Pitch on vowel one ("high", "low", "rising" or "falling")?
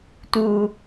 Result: low